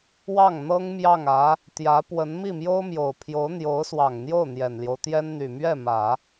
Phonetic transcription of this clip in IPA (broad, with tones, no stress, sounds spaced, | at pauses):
w ɑ˥˩ ŋ n̪ ɤ˥ ŋ m j ɑ˥˩ ŋ ä˧˥ | t̪ j ä˧˥ p w ə˧˥ n m i˥˩ m j o˥ ʊ̯ m j o˨˩ ʊ̯ pʰ j o˧˥ ʊ̯ n̪ j o˧˥ ʊ̯ s w ɑ˨˩ ŋ n̪ j o˥˩ ʊ̯ n̪ j ɛ˨˩ n l j o˦ ʊ̯ t̪ j ɛ˥ n n̪ y˨˩ m ɥ ɛ˥˩ m ä˨˩˦